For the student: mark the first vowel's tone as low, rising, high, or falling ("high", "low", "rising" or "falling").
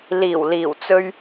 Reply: low